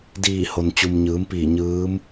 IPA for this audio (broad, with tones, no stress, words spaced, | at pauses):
diː˧˩ho˩nt͡ɕu˩m ɲɯː˩˧mpiː˧˩ ɲɯː˧˥m